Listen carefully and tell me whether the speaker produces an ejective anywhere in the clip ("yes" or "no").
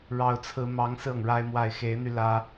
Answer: no